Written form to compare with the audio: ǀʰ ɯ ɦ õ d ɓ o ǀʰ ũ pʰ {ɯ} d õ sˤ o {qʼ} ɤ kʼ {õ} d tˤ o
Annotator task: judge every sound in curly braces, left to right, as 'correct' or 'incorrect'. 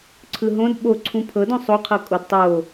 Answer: incorrect: ɤ, incorrect: qʰ, incorrect: o

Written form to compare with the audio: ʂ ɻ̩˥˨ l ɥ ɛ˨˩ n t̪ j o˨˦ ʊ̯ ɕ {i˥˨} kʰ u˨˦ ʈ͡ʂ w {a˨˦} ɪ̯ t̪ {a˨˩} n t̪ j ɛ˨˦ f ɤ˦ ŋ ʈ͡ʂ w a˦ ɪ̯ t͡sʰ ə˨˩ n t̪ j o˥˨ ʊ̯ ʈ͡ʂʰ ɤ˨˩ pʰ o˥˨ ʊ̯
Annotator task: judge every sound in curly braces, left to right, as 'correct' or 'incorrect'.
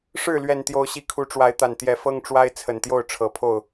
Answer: incorrect: i˨˦, correct, correct

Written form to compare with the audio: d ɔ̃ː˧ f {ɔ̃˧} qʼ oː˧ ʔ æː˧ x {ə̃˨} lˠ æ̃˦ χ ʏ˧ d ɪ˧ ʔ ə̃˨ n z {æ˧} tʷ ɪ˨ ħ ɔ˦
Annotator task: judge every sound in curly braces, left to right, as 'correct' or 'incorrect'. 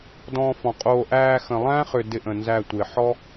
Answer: incorrect: ɔ̃˨, correct, correct

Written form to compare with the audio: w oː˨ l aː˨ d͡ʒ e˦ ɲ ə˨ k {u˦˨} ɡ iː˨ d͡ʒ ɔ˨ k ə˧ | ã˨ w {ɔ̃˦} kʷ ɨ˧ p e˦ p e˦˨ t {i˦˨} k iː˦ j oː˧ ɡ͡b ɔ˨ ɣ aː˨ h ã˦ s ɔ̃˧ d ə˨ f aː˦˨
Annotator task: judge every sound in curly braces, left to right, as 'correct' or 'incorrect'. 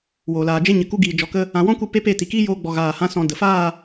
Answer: incorrect: u˧, correct, incorrect: i˨

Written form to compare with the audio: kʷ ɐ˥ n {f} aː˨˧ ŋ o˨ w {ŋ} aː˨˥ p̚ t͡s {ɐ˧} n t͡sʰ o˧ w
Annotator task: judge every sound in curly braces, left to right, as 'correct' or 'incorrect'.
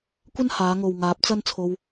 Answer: incorrect: h, correct, incorrect: ɐ˥

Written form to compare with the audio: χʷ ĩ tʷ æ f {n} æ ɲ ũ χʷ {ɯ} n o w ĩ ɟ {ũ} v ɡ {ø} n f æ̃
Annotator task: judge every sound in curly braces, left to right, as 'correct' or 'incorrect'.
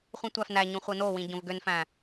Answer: correct, correct, incorrect: õ, correct

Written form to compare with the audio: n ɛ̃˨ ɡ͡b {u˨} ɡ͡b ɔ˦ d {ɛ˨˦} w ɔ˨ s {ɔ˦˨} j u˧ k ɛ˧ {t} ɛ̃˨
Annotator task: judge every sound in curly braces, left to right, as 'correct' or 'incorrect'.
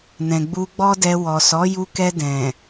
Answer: incorrect: u˧, incorrect: ɛ˧, incorrect: ɔ˨˦, incorrect: d

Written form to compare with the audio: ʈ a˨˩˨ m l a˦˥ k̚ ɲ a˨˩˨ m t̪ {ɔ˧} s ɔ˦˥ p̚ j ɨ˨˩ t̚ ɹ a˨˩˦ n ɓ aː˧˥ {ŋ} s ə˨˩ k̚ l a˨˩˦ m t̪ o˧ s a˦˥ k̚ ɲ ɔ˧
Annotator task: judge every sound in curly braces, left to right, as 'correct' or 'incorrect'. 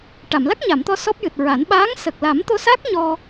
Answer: correct, correct

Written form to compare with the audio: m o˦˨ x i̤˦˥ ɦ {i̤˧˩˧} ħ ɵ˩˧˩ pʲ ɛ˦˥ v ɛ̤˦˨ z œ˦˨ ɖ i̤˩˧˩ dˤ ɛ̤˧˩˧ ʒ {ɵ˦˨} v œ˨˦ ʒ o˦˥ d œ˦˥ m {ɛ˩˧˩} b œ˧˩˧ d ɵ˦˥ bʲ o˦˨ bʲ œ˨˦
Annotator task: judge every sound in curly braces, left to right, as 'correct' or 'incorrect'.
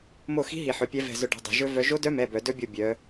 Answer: incorrect: i˧˩˧, incorrect: ɵ˦˥, correct

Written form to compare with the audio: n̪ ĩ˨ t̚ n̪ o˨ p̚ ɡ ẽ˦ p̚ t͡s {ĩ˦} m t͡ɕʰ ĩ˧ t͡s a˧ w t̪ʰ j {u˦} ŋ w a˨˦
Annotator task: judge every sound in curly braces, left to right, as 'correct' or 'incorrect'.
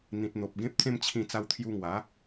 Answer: incorrect: ẽ˦, incorrect: u˧

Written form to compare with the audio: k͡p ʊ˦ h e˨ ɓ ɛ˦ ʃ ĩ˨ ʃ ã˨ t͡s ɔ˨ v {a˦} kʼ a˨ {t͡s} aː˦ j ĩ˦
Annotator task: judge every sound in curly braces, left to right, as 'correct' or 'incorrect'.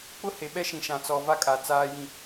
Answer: correct, correct

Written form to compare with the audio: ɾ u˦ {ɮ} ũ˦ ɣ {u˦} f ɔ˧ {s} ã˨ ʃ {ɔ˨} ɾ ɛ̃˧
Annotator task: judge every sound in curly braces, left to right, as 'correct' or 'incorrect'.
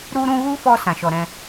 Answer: incorrect: ɾ, correct, correct, correct

